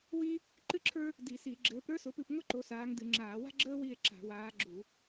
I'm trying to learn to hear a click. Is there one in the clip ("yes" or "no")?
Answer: yes